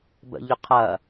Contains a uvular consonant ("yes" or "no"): yes